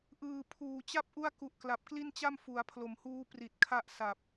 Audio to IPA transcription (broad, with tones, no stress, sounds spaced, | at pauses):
ʔ ɯː˨˩ pʰ uː˨˩ t͡ɕ a˥˩ p̚ ʔ u˥˩ a̯ k u˨˩ ʔ k l a˨˩ p̚ k l i˥˩ n t͡ɕ a˥˩ m f u˩˦ a̯ pʰ l o˨˩ m h uː˧ p r i˨˩ t̚ kʰ a˦˥ ʔ s a˨˩ p̚